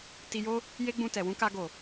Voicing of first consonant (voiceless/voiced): voiceless